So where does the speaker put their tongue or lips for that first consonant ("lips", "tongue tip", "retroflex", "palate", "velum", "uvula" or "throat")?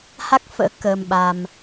throat